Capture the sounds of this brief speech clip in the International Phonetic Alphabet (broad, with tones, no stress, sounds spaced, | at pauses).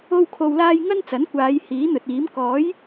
o˧ w kʰ o˨ w l aː˧ j ŋ ɐ˥ n t͡s ɐ˨˥ n kʷ aː˨˧ j h iː˨˥ n̪ ɵ˨ t̚ iː˨˥ m k ɔː˨˥ j